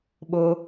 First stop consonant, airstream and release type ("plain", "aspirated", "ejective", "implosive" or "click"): implosive